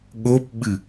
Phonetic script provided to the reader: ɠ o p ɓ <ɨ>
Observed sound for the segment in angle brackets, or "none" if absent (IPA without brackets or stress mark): ɨ